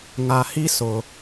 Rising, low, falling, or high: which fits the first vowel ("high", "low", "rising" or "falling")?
low